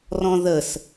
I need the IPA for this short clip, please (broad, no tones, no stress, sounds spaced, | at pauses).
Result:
r ɔ̃ ð ə s